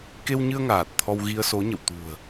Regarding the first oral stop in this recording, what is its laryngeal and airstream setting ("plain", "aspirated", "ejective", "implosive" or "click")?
plain